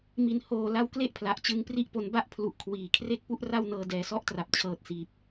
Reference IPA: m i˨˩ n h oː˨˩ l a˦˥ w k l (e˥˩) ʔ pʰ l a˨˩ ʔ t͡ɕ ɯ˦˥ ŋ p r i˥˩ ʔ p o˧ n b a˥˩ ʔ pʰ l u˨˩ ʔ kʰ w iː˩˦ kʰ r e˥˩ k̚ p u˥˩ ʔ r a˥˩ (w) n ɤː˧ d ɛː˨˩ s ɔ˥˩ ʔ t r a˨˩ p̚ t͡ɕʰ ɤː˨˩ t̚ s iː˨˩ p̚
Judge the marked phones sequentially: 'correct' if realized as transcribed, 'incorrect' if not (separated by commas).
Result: correct, correct